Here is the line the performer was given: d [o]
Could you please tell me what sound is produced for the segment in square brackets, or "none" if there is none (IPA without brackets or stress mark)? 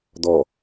ɔ